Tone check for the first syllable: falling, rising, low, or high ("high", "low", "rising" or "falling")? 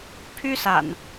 high